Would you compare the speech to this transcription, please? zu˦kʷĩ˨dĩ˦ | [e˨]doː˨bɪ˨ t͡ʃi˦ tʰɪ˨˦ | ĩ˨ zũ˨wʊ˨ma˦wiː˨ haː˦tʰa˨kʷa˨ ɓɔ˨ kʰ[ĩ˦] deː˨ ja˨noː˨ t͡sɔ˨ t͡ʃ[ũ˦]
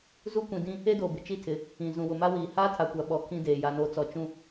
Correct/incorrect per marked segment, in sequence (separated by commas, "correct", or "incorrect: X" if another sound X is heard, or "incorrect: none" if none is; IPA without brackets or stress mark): incorrect: e˦, correct, correct